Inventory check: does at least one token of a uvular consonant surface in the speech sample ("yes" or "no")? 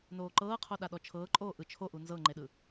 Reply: yes